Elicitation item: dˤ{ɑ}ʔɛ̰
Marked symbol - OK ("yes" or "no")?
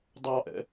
yes